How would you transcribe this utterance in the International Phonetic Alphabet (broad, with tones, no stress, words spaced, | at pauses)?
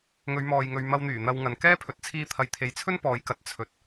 ŋɵ˨˧ɥmɔː˨jŋɵ˨ɥ mɐ˧wn̪yː˨˩ n̪ɐ˧wŋɐ˨n kɛː˥pʰɵ˨˥t̚ t͡sʰiː˧t̪ʰɐ˨˧jt̪ʰe˨˧jt͡sʰɵ˥n pɔː˨˧jkɐ˨t̚ t͡sʰɵ˨t̚